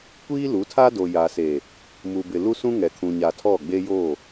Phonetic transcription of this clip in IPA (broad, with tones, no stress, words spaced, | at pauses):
kʷiː˦lu˨˦tʰa˦do˨ ja˨se˨ | mu˨bɪ˨ lu˦sũ˦ŋɛ˨ kʰũ˨ɲa˨tʰɔ˦˨ ɡ͡be˦joː˦˨